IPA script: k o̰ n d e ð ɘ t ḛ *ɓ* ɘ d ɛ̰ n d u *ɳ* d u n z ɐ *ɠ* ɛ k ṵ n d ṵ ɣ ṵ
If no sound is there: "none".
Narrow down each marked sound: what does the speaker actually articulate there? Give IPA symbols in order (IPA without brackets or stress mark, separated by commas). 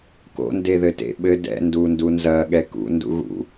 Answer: ɓ, n, ɠ